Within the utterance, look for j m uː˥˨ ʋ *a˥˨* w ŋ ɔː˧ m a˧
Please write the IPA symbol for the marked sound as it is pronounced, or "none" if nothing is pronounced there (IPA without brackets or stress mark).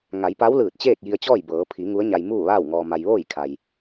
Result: aː˥˨